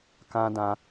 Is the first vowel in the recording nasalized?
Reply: yes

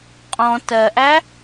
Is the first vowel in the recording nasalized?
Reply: yes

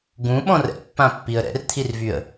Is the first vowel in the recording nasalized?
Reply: yes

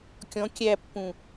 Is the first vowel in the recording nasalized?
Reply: yes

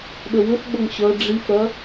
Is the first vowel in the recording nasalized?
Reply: no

